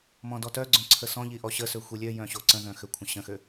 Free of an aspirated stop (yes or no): no